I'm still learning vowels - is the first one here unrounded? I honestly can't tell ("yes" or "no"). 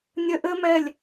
yes